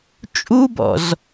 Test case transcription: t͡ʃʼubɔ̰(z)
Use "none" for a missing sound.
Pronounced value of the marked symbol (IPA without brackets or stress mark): z